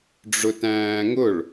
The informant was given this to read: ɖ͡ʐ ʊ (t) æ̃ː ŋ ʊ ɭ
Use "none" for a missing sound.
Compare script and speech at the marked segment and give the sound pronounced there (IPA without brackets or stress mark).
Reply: t